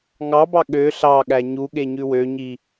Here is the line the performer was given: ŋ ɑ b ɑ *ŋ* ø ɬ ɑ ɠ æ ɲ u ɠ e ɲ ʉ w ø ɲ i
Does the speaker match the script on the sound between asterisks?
no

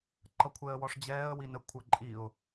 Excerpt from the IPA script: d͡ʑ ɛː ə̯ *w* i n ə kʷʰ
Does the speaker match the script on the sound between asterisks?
yes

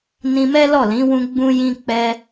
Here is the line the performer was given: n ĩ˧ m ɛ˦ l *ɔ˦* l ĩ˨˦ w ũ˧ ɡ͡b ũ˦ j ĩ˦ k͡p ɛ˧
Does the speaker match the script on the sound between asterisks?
no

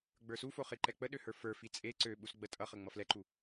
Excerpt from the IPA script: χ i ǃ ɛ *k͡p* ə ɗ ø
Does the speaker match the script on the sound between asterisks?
yes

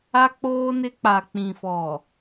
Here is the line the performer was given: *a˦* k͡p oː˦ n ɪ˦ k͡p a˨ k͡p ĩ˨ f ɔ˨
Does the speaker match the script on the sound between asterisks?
yes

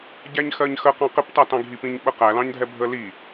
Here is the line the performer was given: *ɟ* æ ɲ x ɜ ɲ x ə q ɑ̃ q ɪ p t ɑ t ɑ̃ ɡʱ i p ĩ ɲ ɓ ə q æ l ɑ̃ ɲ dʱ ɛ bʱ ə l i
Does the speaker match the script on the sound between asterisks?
yes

